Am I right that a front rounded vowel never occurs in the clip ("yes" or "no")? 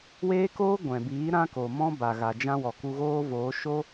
yes